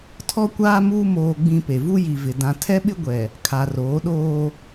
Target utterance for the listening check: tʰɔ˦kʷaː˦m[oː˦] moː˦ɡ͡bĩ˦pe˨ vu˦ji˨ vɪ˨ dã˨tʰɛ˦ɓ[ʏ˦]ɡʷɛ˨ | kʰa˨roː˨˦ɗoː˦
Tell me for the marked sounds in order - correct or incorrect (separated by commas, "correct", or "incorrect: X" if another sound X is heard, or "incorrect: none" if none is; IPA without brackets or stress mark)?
incorrect: uː˦, incorrect: ɪ˦